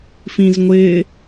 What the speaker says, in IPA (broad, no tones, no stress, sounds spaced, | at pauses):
f ĩ z ŋʷ ɪː